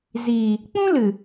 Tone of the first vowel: low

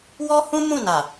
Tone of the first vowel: high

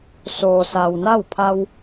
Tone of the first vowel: low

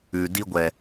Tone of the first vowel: low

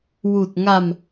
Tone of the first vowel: low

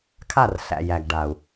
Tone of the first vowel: falling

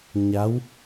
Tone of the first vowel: rising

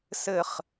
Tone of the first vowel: low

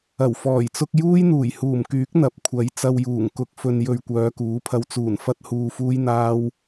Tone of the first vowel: low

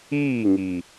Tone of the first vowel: falling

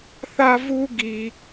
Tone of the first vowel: high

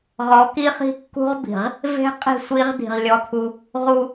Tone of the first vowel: rising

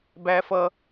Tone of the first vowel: high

